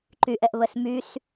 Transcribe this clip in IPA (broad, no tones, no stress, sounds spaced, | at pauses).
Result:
ǃ y ʔ ɛ ʔ β ə s m y s